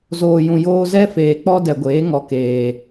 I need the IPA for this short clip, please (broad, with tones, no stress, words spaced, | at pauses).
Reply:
zoː˨jũ˨joː˧zɛ˦ feː˨k͡pɔ˦dɛ˨ɡʷeː˨˦ ŋɔ˨keː˨